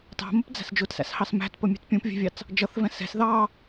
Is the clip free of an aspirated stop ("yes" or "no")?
yes